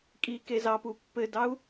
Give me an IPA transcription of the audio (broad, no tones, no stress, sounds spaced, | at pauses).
kʼ i k e z ɑ p u pː ɘ d ɑ u̯